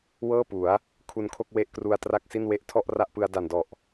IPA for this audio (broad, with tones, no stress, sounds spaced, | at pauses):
w ɤː˥˩ p u˩˦ a̯ | kʰ u˧ n kʰ o˥˩ k̚ w e˥˩ ʔ k r u˧ a̯ t r a˥˩ k̚ s i˥˩ n w e˦˥ ʔ tʰ ɔ˥˩ ʔ r a˥˩ ʔ p ɯ˧ a̯ d a˨˩ n d ɔ˨˩ ʔ